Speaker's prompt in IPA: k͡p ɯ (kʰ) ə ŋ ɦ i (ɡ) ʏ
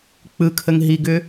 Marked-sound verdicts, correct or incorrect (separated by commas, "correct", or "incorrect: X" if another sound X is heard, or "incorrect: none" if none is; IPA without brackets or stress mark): correct, correct